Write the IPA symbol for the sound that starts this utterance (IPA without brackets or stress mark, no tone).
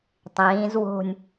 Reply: tˤ